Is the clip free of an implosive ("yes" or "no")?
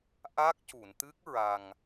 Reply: yes